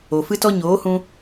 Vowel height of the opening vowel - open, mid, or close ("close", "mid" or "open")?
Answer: mid